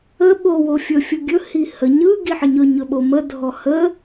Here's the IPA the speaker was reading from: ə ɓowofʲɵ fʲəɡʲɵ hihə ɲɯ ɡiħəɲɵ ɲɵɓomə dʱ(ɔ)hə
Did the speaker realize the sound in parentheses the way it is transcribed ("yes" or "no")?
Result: yes